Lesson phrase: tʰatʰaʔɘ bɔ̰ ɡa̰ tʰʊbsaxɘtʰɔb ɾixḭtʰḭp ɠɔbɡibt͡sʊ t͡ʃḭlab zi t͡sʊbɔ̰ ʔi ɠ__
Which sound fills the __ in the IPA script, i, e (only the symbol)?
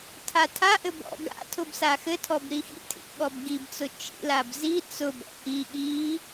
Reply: i